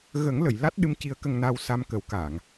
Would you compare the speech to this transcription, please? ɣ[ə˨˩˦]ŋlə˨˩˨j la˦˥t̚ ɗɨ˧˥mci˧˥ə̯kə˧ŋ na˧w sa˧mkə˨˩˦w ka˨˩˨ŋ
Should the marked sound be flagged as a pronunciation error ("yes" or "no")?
no